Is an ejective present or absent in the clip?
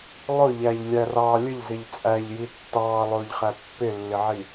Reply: present